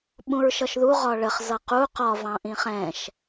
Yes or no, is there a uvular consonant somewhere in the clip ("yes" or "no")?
yes